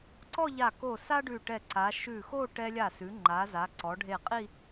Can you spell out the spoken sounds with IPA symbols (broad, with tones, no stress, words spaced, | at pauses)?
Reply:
ǀɔ˥˧ʎa˧˩ko˧˩ sa˥ɖʉ˧˩ʈɛ˧˩ǀa˩˧ ʃʉ˧˩xo˥˧ ʈɛ˧lʲa˧˩sʉ˩˧ ŋ͡ǃa˩˧za˩˧ǀɔ˩˧ ɖʱe˧˩qʼi˥˧